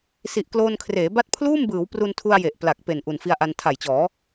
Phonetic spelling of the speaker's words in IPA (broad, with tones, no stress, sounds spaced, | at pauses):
s i˨˩ ʔ k l oː˧ n kʰ r eː˩˦ b a˦˥ t̚ pʰ l uː˥˩ m b ɯː˩˦ w p r u˧ n tʰ u˧ a̯ j e˨˩ ʔ p l a˨˩ k̚ p e˨˩ n ʔ u˨˩ n f i˧ a̯ ʔ a˧ n tʰ a˨˩ j t͡ɕ ɔː˩˦